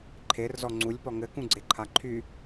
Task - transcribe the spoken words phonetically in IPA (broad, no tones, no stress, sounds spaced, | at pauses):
ǃʰ e r z ɔ ŋ͡ǀ u lʲ p ɔ ŋ ɘ k ũ ɡ͡ǀ e ǃʰ a ǃʰ y